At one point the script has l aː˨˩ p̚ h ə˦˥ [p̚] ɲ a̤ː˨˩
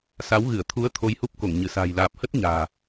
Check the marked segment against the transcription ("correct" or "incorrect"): incorrect